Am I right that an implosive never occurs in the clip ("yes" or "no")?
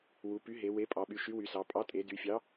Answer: no